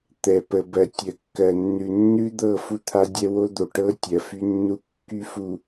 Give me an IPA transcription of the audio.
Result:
t̪ɛ˨pə˨bɜ˨ tʲə˨kːɜ˨nːʉ˨ nːʉ˦d̪ɤ˦˨ fu˦t̪ʰa˦dʲɛ˦ wo˦d̪o˨ʈɤ˦ tʲɜ˨fy˦nːu˦ kːy˦fu˨

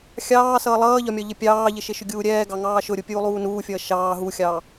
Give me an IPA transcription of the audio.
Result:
xʲɑːsʌː lˠʌːʎɒmʲɒ ʎɪpʲɑːʎɪʃɪ ʃʊɡʲuːɾʲɛːɡɑ ŋɑːʃʊɾʲu pʲuːlˠuːnuːfʲʌː ʃɑː ɦuxʲɑː

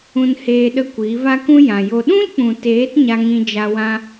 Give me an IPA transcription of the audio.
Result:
ũ˧nheː˧ɗə˧ kʷiː˨˦va˦kũ˦ jã˨jo˧ ɗũ˦lk͡pũ˨teː˨˦t ɲa˦ŋĩ˦d͡ʒa˦ wã˦

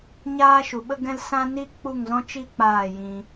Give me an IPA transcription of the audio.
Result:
ɲaː˦ʃu˨ɓə˦ɡɛ̃˦l sã˦ni˦ k͡pu˦˨ŋzɔ̃˦t͡ʃi˦ k͡paː˦˨jĩ˧

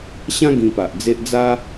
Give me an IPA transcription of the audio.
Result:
ɕã˦ ɡĩ˧pa˨ʔd͡ze˦ʔ d͡za˦

